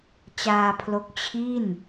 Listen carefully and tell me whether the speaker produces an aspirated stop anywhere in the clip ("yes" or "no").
yes